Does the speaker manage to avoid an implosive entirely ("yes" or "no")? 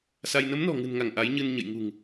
yes